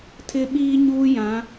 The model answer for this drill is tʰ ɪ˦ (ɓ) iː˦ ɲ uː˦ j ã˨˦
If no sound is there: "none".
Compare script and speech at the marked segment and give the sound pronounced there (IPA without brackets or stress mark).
ɓ